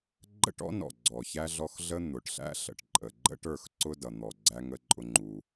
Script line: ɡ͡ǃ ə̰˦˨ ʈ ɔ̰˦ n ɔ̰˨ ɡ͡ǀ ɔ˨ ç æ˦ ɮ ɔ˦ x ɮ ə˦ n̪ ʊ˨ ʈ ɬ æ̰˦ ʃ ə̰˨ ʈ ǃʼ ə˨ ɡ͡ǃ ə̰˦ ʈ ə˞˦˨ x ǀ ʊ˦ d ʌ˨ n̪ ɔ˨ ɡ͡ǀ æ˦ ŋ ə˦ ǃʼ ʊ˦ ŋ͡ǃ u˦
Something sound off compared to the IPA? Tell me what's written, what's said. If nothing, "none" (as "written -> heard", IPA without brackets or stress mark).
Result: ʃ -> ɬ